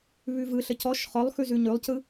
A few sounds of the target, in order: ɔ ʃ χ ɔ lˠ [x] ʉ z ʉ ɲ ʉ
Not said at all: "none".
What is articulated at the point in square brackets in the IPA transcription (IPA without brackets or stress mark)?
x